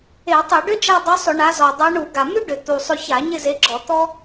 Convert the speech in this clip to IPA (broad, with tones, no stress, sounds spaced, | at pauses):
e˧˩˧ tˤ e˧˩˧ ɖ ʏ˥ d͡ʒ a˦˨ dˤ ʉ˨˦ sˤ ʏ˧˩˧ ɳ a˨˦ z ɔ˨˩ dˤ a˨˦ ɳ u˧˩˧ ɡ a˨˩ m ʉ˥ ɖ ʏ˨˩ t̪ u˨˩ sˤ ʏ˦˨ ç a˧˩˧ ɲ ɪ˦˨ z e˨˦ ɡ͡ǁ ɔ˧˩˧ t̪ ɔ˥